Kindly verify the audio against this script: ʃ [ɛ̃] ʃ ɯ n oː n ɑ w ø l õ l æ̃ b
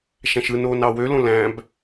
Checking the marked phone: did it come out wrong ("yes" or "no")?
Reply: yes